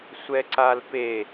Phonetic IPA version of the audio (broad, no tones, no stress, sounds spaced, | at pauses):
sʷ ɛ ǀ a l p e